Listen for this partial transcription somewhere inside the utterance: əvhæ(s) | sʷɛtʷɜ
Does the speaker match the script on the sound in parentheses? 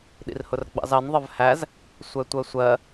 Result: no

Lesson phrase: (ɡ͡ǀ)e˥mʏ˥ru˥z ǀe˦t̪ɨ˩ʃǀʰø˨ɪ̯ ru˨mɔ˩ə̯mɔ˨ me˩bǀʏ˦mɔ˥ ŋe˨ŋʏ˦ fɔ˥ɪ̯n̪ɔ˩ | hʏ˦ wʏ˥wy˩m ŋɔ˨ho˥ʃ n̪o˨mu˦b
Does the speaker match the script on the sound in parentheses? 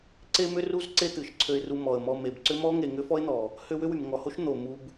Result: no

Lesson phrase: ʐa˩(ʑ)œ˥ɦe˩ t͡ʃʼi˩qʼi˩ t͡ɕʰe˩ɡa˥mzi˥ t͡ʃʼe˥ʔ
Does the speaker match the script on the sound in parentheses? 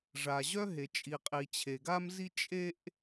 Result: yes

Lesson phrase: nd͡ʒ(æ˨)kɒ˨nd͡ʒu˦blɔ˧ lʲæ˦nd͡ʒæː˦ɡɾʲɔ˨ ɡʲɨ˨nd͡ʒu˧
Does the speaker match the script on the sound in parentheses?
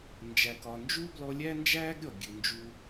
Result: yes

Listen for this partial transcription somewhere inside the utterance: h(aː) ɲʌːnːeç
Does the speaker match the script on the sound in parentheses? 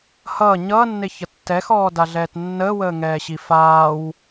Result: no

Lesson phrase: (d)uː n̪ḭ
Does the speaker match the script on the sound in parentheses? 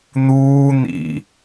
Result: no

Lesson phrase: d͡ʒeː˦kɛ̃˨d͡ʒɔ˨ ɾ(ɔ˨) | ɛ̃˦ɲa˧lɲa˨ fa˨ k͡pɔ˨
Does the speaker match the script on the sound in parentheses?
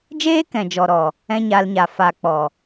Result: yes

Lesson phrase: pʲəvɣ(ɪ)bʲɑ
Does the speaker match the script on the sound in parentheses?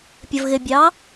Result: yes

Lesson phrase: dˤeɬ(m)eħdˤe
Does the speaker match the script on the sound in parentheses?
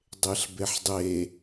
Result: no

